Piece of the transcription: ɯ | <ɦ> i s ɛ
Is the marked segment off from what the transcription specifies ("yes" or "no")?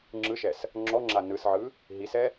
no